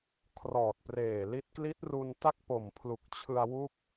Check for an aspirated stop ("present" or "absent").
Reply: present